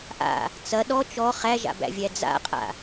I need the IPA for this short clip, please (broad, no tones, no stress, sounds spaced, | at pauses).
ʔ a̰ | t͡s ɐ ɗ ɔ t͡ʃ ɔ χ æ ʒ a̰ b æ̰ vʲ æ d͡z a̰ qʼ a̰